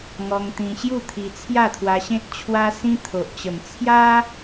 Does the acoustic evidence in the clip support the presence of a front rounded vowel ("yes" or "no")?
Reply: no